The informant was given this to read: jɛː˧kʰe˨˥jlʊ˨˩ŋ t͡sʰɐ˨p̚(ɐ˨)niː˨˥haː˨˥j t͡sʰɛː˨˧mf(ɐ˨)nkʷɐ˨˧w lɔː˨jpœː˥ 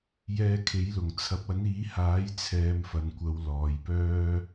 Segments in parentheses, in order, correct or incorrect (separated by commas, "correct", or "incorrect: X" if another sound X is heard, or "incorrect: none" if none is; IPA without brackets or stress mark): incorrect: ɐ˨˥, correct